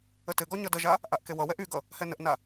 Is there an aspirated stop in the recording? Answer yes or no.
no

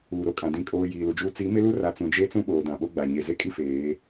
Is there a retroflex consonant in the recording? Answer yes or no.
no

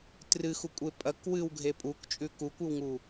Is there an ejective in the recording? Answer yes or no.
yes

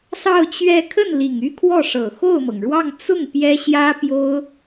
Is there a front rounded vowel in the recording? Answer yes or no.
yes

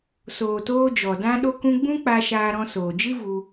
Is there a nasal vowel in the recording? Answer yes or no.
yes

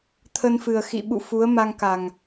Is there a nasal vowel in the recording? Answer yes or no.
no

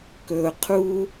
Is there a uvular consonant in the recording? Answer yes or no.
yes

